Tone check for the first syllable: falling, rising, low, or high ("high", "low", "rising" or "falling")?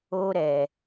high